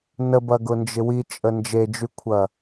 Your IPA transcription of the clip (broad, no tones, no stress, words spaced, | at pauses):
nəbɐɡʊnd͡ʒɪ wit͡ʃʼə nd͡ʒed͡ʒykʷʰɐ